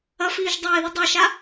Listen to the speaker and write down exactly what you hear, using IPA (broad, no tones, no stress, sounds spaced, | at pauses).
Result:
ɐ f iː ʒ dˤ eː ð i dˤ e ʃ a